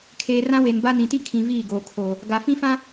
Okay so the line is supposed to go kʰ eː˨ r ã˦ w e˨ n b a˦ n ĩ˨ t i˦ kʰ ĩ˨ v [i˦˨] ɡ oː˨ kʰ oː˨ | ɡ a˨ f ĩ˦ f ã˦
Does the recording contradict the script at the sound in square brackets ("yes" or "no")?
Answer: yes